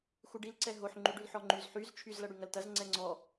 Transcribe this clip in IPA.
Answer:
x u ɖ i l ǀ ɛ ɦ o ħ ŋ͡ǃ y ɖ ʉ l ħ ɔ ŋ͡ǃ y z ħ y z t͡ʃʰ y z l ɐ ɽ y ŋ ɐ l t ɐ z ŋ͡ǀ ɛ ŋ͡ǀ ɔ

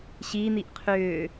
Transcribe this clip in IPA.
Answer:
ɕ i n̪ i ʔ qʰ ʏː

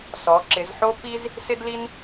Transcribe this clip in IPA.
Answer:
s ɔ˩˧ ǁ ɪ˩˧ z ħ o˥ p i˥ z | s ɪ˥ d l i˥ n

